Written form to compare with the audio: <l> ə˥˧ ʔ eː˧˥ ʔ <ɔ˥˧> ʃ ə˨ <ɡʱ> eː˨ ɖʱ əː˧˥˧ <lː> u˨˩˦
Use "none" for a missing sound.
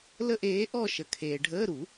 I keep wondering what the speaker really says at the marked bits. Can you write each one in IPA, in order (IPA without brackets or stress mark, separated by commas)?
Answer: l, ɔ˥˧, kʰ, ɾ